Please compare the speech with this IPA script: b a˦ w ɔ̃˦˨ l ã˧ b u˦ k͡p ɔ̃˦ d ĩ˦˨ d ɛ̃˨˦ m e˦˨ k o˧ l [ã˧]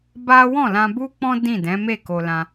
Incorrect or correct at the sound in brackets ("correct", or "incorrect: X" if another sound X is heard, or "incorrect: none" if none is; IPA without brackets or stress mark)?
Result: correct